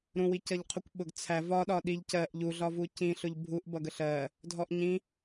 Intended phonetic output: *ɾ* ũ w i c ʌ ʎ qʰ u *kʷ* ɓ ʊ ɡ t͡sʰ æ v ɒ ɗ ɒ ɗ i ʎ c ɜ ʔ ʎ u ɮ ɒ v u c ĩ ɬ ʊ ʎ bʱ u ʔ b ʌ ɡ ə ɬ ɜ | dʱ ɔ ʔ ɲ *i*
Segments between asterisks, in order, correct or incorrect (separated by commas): correct, correct, incorrect